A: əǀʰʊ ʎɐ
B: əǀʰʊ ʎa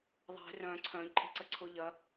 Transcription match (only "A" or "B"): A